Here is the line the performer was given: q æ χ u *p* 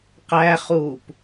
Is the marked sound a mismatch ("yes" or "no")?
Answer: no